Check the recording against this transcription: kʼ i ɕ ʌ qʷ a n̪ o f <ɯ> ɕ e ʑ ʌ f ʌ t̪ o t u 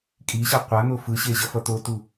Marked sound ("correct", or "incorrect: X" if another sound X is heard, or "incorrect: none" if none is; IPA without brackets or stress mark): correct